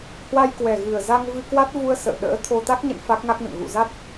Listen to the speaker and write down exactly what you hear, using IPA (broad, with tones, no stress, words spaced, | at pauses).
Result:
hwa˧jkwɛ˨˩ɣɨ˨˩ə̯za˧ŋ vɨ˧kwa˦˥t̚ vu˧ə̯ sə̰ː˧˨ ɗə̰ː˧˥ t̪ʰo˧ t̪a˦˥k̚ɲə̰˧˨n fa˦˥k̚ŋa˦˥k̚nə̰˧˨n ɣṵ˧˨za˦˥t̚